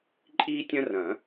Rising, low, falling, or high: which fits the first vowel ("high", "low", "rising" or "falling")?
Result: high